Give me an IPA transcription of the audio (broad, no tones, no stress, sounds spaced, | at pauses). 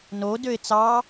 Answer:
n o d ø ɪ̯ t͡s ɑ